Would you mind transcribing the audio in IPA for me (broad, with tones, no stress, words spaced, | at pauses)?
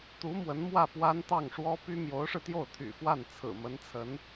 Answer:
t̪u˧˥ mwə˧˥n mwä˥˩ pwa˥nt̪ɑ˥˩ŋʂwɔ˥ py˥ mjo˧˥ʊ̯ʂɻ̩˧t̪jo˥˩ʊ̯ t̪ʰy̰˨˩fwa˥˩n t͡sʰɹ̩˨˩mə˧˥nt͡sʰə˧˥n